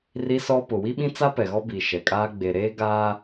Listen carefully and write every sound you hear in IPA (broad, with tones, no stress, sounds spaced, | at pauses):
r i˦ s ɔ˦ p ʊ˨ w i˦ ɓ ĩ˦ t͡s a˦ p ɛ˨ ɣ ɔ˦ b i˨ ʃ ɛ˨ kʼ aː˦ ɡ͡b e˨ ɾ eː˦ ɡ aː˦